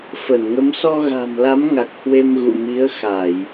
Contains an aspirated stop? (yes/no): no